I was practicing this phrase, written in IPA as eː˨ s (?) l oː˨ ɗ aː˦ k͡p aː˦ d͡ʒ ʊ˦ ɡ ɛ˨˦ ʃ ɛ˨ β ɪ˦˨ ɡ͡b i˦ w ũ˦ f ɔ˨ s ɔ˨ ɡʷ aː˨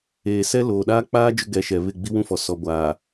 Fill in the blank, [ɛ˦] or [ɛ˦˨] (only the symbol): ɛ˦